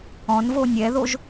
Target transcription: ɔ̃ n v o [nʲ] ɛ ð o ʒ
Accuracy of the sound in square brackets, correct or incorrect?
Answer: correct